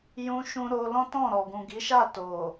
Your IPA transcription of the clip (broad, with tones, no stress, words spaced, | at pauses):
jũ˧ʃũ˧ ɾo˧lɔ̃˦tɔ̃˦˨ɾɔ˨ ɡũ˨ɡi˨˦ʃa˦˨ to˨